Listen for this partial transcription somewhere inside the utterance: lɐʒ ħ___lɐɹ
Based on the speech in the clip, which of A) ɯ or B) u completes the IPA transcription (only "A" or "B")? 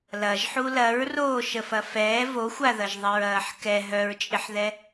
B